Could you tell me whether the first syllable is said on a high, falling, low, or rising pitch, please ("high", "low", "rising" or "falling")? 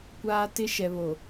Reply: high